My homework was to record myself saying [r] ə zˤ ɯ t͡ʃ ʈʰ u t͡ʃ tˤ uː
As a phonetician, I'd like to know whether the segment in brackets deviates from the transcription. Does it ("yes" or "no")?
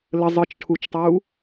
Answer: yes